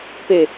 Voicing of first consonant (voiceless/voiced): voiceless